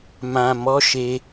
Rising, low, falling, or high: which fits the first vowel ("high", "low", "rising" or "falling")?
low